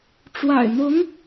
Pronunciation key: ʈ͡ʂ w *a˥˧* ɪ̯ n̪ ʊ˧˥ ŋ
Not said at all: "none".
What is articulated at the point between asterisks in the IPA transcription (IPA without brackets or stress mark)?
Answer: a̰˨˩